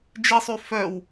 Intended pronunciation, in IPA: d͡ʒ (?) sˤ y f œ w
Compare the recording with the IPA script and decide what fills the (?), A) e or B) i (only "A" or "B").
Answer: B